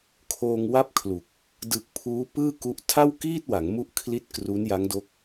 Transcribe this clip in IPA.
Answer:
kʰoː˧ŋwa˥˩p̚kʰlu˨˩k̚ | dɯ˨˩k̚ pʰuː˦˥pɯː˥˩ku˦˥ʔ tʰa˥˩wkiː˥˩t̚wa˩˦ŋmu˦˥ʔ kʰli˥˩t̚ kru˦˥nja˦˥ŋdo˦˥k̚

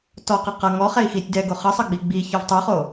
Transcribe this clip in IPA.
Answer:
tɔqɤ qʌ ŋɔχɛi̯ xitʲ dɛɡo χʌsˤʌɡ͡bi ɡ͡biçɔv tˤoχo

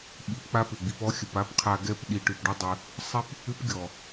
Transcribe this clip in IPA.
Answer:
ɓi˨˦pk͡pa˦pʏ˨ ɡ͡bi˨pɔ˧ xʲə˨pa˦pqʰa˧ ɡɛ˦pɗi˧ʈʏ˧pɖʏ˦ dˤʏ˦ | sˤi˦p | ʏ˦pɡʲɔ˨

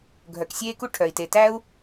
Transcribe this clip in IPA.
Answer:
ɡʱœ˩ksʲeː˦ku˦ ʈʰœ˩i̯te˩tæ˦u̯

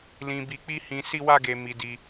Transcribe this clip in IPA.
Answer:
lĩ˧bi˧k͡pi˦hĩ˧ si˦wa˦ɡe˧mi˧ di˧

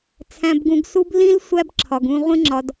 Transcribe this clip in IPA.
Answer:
t͡sʰæ̃˨bɡũ˨ɡsu˧b lĩ˦l sʷæ˦bǁʰɒ˨ɡũ˧ ʁʷĩ˧ŋ͡ǁɒ˨d

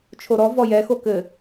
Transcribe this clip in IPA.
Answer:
t͡ʃʰoɾɔ vɔjɛ xokɘ

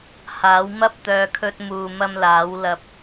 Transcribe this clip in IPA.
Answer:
haː˨˥wmɐ˥p̚t̪œː˧ kʰɵ˧t̚muː˨mɐ˧m laː˨˥wlɐ˧p̚

